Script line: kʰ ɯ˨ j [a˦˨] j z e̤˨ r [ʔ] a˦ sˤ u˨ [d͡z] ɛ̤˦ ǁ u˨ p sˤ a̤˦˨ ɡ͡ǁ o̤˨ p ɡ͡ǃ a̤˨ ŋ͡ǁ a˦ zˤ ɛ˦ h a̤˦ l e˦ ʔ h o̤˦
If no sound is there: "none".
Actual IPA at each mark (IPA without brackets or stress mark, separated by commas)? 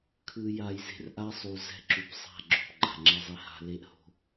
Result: a˨, ʔ, z